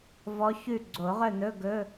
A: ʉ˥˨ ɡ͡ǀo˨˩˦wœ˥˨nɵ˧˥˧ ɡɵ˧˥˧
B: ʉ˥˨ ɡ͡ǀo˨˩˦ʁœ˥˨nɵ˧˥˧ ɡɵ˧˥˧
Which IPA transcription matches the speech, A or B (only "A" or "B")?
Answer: B